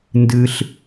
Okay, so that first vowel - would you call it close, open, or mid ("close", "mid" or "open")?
close